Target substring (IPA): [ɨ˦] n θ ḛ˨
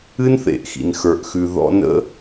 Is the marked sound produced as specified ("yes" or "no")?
yes